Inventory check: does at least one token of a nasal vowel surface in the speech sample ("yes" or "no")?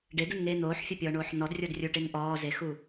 no